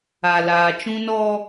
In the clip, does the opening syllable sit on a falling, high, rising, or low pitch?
low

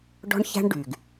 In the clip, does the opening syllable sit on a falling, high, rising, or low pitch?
high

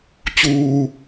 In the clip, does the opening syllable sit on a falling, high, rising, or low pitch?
low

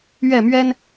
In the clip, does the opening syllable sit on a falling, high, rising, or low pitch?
falling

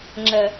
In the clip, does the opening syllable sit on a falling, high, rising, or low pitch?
low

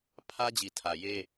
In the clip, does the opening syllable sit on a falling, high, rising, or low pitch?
high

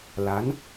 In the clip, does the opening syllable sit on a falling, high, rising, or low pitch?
rising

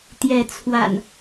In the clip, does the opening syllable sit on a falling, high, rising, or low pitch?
rising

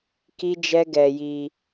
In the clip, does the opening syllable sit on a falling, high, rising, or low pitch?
high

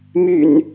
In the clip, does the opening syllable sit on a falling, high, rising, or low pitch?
low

